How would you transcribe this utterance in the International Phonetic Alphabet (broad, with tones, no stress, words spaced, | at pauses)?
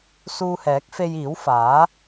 suː˧hɛː˨˥k̚ fe˧jiː˨˥wfaː˨˥